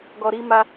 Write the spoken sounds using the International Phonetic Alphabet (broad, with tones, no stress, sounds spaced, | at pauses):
ɡ ɔ˧ ɾ i˦ m a˦